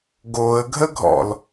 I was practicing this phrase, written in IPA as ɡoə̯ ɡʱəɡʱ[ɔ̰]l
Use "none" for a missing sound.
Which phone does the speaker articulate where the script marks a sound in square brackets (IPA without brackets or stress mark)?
ɔ̰